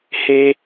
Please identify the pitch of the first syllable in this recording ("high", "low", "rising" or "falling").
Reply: high